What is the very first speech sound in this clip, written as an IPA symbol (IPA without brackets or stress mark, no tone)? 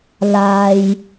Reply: l